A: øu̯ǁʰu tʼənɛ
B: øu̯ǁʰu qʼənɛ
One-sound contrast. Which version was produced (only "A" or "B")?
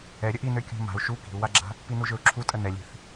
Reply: A